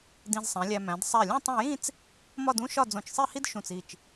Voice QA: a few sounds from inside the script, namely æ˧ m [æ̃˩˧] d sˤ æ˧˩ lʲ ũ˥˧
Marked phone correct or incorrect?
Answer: correct